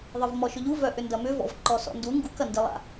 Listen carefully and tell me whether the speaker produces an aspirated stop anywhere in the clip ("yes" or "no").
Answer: no